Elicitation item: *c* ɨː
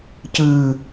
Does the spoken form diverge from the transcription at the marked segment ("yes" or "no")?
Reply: no